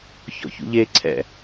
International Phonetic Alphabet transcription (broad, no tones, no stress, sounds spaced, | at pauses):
ç ɔ̰ ç ṵ ʎ e ǀʰ ɛ̰